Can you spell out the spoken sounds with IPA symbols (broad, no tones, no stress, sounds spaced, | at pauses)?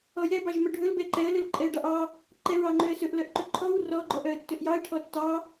ɔ j ɛ b ɑ ʒ m œ ɖʱ ɵ l b ɛ ǃ ɛ ə̯ l ɵ l ǃʼ ɛ ə̯ ɖ ɑ ʔ ɑ | ǃ ɛ ɹ ɑ ŋ͡ǃ ø ə̯ s ɵ ʔ l œ ʔ ǃ ɵ ǃʰ ɔ w r ɔ ɡ͡ǃ ɔ ʔ œ ə̯ tː ɵ ʔ j ɑ ə̯ ʈʰ ɔ tː ɑ